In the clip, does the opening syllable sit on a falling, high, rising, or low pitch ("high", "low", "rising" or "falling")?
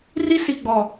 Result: high